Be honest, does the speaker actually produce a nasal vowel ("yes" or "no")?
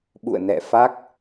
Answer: no